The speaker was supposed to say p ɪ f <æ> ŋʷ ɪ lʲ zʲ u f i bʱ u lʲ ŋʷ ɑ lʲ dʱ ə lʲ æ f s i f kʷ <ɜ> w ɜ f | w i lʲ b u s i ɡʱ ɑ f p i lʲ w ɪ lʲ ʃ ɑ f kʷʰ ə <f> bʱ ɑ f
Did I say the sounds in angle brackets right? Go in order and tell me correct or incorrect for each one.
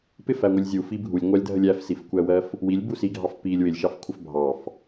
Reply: correct, incorrect, correct

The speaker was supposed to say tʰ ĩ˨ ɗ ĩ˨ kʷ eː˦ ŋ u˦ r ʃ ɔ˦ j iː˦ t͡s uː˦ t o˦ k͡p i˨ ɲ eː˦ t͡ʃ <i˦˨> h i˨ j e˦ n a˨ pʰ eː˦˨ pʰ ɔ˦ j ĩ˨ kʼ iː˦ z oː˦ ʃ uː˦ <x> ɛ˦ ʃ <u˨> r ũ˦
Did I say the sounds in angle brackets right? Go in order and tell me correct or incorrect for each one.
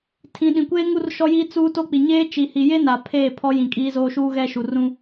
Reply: incorrect, incorrect, correct

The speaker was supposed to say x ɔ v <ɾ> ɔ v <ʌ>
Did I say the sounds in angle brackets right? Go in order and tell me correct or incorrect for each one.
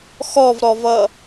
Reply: correct, correct

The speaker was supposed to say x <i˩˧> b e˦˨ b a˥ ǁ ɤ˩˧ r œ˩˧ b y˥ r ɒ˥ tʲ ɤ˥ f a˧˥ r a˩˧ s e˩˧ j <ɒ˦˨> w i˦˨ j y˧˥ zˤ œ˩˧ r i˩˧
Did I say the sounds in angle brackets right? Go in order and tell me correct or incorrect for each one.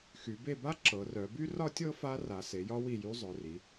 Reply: incorrect, incorrect

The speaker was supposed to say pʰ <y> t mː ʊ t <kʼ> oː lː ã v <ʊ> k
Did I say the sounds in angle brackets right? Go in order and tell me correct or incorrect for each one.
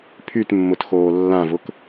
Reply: correct, incorrect, correct

